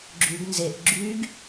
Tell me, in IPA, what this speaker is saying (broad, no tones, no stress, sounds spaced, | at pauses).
ɡ͡ǁ y ɡ n z e ʔ ɡ͡ǁ y ɡ